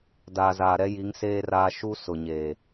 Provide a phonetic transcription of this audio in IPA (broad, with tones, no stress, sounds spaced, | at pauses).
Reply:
d aː˨ z aː˨ ɾ ɛ˦ j i˨˦ ŋ s eː˦ r aː˦ ʃ u˦ s ʊ˨ ɲ eː˨